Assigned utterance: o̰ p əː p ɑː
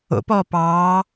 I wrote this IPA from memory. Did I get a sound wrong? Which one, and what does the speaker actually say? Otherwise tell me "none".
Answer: əː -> ɔː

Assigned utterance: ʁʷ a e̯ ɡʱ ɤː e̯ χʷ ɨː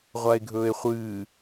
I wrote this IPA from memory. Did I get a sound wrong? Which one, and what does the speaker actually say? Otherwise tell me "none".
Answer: ɤː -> ɵː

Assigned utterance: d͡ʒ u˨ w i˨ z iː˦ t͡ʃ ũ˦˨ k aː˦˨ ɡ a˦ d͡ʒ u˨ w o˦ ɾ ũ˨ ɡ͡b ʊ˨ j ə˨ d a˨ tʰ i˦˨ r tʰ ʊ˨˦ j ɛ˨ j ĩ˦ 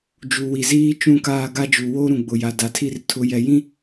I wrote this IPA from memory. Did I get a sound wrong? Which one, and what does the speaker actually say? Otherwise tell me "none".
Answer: ə˨ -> a˨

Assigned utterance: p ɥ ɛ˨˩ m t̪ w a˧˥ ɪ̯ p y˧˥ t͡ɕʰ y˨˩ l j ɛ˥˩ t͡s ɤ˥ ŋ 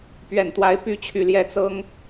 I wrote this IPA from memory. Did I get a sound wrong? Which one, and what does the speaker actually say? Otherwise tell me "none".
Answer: m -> n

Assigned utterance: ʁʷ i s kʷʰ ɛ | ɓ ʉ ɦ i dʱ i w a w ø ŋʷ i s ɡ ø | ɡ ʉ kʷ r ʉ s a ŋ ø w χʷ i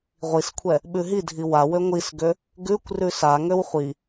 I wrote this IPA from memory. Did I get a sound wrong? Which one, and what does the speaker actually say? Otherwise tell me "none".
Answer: none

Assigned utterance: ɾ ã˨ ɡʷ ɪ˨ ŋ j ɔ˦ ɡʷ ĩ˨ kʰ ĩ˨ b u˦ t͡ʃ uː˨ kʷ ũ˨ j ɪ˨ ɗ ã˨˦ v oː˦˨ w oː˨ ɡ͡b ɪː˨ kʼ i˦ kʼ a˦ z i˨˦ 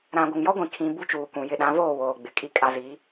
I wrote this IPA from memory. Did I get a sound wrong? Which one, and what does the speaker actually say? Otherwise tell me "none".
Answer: ɪː˨ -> ɪ˨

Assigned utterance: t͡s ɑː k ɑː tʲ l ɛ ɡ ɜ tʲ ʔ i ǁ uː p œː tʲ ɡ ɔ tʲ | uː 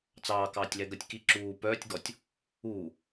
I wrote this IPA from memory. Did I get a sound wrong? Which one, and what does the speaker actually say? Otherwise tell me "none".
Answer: ʔ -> k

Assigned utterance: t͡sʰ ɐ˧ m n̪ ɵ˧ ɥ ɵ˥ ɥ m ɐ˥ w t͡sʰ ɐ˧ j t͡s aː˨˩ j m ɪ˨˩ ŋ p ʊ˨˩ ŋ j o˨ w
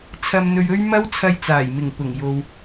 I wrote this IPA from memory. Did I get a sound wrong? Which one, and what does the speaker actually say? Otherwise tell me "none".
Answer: none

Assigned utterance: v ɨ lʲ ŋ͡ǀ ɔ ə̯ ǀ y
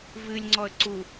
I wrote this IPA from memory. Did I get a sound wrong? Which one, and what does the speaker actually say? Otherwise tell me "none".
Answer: y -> u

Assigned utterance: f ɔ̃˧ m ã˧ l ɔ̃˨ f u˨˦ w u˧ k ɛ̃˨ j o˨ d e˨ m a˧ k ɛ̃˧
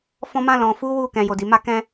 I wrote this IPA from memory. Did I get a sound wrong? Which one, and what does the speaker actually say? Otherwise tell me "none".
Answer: e˨ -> i˨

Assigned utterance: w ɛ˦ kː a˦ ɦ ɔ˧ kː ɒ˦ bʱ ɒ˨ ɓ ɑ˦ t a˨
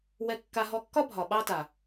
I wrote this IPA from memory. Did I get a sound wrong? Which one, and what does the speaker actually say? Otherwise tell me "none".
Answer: none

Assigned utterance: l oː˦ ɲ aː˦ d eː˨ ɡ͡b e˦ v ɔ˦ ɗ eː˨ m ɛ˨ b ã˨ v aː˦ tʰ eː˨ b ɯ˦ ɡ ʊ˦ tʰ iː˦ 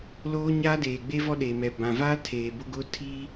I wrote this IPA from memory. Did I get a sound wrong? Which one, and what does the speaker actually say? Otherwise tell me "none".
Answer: ɯ˦ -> ʊ˦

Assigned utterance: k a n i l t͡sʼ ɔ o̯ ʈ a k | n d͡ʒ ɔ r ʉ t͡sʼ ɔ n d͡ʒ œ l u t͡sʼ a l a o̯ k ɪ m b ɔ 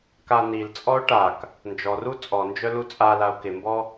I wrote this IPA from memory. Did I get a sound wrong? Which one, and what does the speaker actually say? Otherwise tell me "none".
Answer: ʉ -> u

